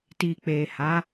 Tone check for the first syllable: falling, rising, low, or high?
low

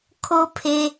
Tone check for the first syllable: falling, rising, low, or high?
high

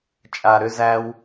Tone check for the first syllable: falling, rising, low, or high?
low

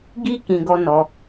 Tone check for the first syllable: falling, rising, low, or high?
high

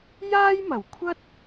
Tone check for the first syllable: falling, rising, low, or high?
high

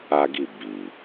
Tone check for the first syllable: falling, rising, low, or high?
high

